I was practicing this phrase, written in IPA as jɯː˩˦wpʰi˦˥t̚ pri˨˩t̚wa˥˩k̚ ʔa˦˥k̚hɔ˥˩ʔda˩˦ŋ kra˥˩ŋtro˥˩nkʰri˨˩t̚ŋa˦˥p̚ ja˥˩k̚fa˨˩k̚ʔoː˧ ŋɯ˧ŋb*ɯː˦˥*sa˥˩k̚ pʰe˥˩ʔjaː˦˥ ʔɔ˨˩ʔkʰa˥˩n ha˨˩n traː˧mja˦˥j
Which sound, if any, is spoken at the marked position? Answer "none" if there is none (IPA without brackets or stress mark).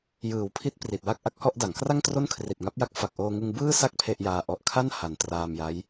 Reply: ɯː˥˩